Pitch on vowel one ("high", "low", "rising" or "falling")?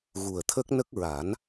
low